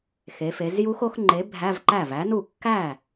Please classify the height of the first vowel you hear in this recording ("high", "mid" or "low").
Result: mid